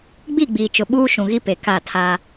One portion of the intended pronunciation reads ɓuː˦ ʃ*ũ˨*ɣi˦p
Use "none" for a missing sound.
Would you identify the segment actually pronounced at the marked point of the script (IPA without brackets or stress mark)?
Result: ũ˨